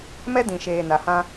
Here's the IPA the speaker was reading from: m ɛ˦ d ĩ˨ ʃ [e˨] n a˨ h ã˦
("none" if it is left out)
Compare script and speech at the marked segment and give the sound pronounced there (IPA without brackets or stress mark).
eː˨